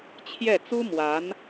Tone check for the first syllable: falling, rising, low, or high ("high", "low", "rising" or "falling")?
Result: falling